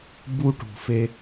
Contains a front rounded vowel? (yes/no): no